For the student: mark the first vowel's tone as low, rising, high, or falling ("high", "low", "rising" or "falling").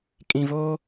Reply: low